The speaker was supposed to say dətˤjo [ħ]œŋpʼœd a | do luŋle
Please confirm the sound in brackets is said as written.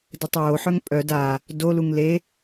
yes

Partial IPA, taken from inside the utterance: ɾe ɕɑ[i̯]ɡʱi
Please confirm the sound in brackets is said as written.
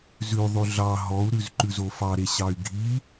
no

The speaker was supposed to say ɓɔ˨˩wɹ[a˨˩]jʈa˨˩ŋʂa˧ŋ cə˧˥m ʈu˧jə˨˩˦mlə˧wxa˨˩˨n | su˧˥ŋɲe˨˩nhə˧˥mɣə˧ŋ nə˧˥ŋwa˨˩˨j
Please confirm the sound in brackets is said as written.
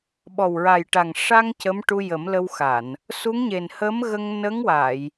yes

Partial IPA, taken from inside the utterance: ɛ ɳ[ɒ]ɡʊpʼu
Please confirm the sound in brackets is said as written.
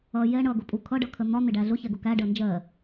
no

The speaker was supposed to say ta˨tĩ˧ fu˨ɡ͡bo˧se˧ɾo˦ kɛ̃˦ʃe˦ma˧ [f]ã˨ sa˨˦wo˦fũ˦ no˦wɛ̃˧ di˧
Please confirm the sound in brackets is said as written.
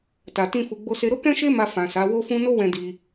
yes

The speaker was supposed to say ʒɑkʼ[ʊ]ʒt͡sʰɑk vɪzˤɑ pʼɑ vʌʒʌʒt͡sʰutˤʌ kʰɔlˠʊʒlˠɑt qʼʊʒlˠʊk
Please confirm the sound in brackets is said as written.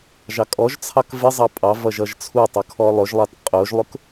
no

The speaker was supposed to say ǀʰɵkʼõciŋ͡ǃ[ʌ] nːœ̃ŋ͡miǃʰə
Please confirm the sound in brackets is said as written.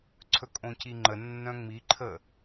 no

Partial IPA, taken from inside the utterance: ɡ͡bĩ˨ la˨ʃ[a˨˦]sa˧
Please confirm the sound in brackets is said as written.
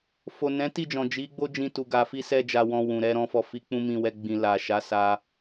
yes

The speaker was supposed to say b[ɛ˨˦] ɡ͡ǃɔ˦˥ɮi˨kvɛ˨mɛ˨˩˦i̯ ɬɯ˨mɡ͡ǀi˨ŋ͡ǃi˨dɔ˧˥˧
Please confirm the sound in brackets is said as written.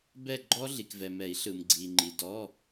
no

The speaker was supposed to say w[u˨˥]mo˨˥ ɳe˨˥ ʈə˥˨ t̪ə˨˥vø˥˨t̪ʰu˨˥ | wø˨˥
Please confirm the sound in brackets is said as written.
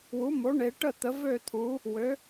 yes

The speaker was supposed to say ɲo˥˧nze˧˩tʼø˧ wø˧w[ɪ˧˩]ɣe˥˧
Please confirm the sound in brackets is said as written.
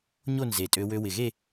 yes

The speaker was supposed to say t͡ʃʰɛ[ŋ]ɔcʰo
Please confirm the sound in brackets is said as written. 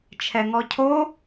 yes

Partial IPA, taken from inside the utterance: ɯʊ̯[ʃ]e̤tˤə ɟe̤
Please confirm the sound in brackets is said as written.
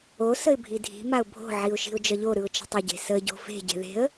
no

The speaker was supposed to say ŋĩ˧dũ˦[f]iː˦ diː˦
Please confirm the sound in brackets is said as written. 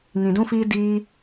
yes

